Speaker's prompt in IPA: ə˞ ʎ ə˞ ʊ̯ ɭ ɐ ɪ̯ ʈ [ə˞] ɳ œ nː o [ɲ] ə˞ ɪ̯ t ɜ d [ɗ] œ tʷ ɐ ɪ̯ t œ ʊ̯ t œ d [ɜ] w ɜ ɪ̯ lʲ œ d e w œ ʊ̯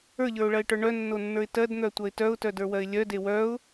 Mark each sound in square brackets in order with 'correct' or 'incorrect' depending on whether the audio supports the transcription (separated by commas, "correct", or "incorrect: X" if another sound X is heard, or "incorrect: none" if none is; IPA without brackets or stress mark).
correct, incorrect: nː, incorrect: n̪, incorrect: ə˞